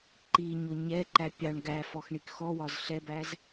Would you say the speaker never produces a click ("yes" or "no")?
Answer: no